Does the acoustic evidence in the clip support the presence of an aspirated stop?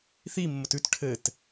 yes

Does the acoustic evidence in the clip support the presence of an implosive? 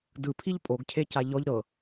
no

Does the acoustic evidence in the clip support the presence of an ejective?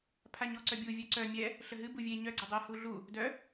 no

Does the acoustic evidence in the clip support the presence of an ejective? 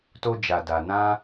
no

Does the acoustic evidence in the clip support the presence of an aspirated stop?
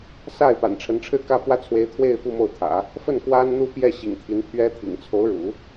yes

